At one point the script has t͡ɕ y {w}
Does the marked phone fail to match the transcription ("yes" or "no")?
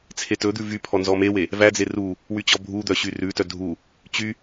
yes